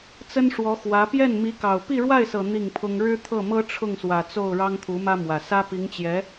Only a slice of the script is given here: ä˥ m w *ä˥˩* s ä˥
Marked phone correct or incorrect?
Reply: incorrect